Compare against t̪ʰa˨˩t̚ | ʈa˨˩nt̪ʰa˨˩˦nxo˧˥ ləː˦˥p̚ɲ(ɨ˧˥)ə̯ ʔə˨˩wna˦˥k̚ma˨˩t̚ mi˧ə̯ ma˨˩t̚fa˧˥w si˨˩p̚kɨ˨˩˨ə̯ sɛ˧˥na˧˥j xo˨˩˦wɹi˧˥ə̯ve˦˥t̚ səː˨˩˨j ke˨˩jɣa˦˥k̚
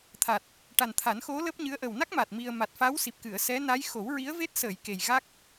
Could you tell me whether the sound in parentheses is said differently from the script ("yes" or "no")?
no